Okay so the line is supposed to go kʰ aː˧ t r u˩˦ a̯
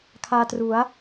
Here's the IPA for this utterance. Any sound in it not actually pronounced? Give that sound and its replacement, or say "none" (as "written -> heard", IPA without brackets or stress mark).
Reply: none